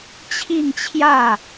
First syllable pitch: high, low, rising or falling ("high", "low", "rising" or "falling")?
falling